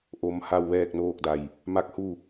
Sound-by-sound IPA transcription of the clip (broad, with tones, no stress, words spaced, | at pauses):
ʔo˧˥mha˥˨w ʋɛː˥˨k̚noː˥˨k̚da˧˩j | ma˧˥k̚ hu˥˨